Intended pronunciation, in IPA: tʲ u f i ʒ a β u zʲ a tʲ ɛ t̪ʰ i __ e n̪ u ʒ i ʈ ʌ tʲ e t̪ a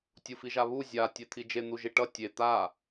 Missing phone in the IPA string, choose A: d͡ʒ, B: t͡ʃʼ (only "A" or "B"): A